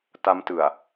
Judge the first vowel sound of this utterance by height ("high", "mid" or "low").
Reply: low